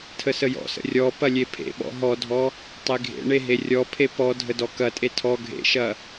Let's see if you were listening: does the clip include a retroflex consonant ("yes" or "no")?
yes